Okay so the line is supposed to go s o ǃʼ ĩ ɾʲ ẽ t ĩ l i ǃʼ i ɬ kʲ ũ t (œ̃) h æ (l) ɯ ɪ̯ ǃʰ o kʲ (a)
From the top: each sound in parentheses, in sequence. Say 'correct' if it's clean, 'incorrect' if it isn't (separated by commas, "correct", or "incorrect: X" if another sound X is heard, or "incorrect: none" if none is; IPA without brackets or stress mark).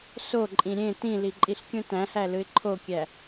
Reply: incorrect: æ̃, correct, incorrect: æ